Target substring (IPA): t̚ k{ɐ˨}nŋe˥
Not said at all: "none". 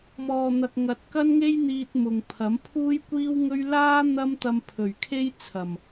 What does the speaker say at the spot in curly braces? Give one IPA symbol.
ɐ˥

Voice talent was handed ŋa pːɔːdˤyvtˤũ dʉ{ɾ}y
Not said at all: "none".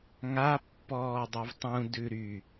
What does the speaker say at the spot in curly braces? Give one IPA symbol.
ɾ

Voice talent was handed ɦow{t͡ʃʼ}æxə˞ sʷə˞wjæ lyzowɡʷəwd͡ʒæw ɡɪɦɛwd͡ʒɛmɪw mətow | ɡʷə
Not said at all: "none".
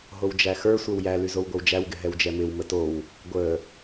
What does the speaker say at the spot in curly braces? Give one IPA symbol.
d͡ʒ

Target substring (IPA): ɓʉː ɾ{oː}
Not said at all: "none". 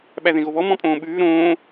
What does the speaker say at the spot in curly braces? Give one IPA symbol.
õː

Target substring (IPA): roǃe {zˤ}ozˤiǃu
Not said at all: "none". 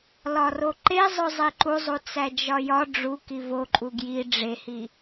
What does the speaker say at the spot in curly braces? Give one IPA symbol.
zˤ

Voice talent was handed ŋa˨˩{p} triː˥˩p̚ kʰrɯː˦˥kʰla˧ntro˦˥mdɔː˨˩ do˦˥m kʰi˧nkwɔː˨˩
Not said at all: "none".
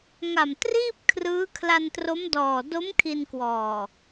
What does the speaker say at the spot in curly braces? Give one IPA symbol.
m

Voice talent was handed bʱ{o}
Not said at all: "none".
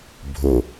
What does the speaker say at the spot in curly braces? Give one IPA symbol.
o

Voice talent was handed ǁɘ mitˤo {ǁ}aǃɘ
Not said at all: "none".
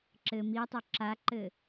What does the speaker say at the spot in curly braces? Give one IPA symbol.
ǁ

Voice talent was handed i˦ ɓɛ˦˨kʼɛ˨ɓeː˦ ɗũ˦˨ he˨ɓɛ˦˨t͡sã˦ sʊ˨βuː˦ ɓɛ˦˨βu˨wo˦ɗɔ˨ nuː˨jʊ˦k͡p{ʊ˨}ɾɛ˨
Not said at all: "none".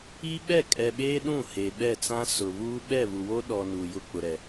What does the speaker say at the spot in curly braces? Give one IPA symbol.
ʊ˨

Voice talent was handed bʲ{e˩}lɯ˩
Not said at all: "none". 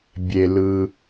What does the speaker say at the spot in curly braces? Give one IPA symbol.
e˩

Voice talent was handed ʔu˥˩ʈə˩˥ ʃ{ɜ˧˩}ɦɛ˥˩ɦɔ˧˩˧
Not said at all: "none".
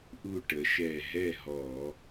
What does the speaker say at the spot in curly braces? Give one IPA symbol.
ɛ˧˩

